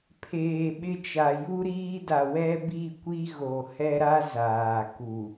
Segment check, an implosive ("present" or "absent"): present